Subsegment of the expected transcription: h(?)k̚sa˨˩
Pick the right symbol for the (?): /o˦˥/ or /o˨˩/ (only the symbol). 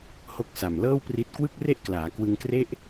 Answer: o˦˥